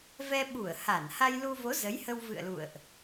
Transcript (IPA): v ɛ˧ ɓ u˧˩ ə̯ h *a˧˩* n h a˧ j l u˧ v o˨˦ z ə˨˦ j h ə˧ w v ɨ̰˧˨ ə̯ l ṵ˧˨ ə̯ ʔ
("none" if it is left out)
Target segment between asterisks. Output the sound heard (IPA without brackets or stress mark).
a˧˩